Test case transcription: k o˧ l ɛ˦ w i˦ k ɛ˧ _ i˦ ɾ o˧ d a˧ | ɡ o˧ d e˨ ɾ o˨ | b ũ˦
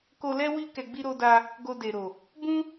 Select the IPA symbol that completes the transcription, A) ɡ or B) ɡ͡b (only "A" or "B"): B